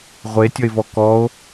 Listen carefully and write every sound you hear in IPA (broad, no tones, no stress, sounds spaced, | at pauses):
ʁʷ e tʲ ʌ e̯ v ɔ k ɔ o̯